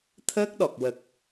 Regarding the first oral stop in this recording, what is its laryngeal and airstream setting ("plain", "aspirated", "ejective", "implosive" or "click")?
aspirated